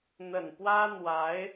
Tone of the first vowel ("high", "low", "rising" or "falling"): low